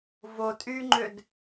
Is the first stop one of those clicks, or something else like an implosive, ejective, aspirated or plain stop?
ejective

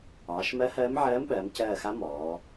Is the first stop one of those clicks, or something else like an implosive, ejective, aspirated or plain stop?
implosive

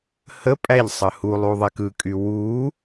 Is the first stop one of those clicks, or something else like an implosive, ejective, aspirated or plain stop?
ejective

